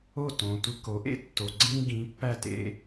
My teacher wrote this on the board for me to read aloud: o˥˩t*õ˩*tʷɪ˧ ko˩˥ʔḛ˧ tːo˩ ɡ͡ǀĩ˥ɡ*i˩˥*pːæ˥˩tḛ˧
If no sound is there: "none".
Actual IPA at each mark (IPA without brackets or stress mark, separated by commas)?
õ˩, ĩ˩˥